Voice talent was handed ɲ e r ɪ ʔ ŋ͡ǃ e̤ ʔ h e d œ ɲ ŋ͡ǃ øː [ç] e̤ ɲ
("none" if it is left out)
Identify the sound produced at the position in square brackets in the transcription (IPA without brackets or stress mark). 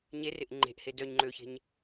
ç